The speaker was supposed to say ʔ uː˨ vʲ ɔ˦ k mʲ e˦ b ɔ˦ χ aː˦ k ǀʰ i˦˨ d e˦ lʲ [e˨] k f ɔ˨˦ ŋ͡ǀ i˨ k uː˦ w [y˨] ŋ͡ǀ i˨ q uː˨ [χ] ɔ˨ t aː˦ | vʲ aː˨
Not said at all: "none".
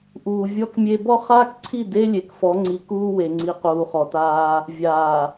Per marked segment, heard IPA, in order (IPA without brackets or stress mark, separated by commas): e˨, e˨, χ